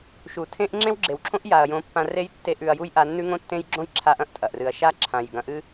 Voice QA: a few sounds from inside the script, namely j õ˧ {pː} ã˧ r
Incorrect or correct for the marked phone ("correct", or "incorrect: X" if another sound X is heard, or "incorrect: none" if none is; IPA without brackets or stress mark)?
correct